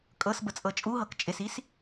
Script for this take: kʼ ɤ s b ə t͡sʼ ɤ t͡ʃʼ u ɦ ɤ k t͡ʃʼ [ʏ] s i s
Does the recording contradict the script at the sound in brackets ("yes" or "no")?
yes